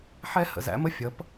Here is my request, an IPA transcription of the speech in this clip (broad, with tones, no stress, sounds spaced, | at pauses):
ħ ɛ˥ h ə̰˩˧ z æ̰˩˥ m ə˥ fʲ ʌ˩˥ p